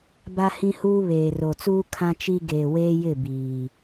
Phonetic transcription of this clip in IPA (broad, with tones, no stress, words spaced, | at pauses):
ba˦hĩ˦huː˦ βeː˨ro˨t͡suː˦ kʰã˦t͡ʃi˦ ɡeː˨weː˦jɪ˦˨ biː˨